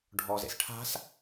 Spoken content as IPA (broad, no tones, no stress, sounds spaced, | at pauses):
ɖʱ ɔ z ḛ s ʈʰ a̤ s